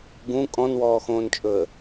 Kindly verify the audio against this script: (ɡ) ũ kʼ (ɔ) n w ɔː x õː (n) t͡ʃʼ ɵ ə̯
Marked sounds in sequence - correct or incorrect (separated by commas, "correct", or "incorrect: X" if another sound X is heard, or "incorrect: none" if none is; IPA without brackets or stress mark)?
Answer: correct, incorrect: ɔ̃, correct